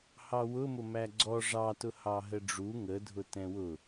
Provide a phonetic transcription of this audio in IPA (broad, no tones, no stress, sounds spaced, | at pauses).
h ɑ w ʊ m ʊ m æ ɡ͡ǀ ɔ ʐ ɑ t ʊ h ɑ ɦ ə ɖ͡ʐ u ŋ ə dʱ ʊ t ɛ̃ w ʊ